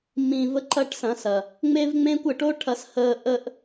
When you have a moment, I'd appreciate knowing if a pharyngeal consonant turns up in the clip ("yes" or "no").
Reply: no